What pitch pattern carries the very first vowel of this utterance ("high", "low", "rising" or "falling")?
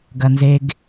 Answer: high